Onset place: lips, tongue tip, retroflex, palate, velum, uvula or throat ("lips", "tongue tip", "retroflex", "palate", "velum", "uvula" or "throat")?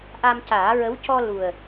throat